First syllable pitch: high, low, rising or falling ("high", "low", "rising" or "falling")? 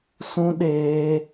high